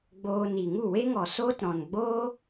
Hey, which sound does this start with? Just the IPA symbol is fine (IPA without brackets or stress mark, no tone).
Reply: ɡ͡b